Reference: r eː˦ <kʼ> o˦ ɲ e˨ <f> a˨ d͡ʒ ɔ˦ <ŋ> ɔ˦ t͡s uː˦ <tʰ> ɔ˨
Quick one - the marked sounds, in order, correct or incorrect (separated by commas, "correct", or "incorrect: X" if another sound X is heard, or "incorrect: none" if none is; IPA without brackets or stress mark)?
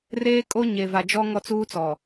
correct, incorrect: v, correct, incorrect: t͡s